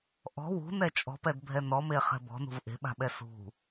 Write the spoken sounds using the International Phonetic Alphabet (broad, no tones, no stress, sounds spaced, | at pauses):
ʔ ɔ̤ w ṳ n ɛ t͡ʃʼ ɔ̤ p ɛ d bʱ ɛ n ɔ m e χ ɛ̤ b ɔ̤ n ṳ v ʔ e̤ ɓ a̤ ɓ ɛ s ṳ